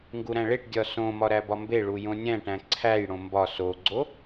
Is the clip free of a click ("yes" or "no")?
no